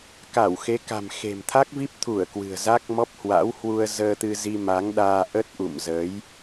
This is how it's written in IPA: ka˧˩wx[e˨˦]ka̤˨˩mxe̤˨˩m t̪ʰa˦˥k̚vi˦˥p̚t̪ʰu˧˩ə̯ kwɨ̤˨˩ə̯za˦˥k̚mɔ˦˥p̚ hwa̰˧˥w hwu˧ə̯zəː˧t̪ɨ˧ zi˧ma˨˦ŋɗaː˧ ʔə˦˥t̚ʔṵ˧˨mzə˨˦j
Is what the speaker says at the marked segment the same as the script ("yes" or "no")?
yes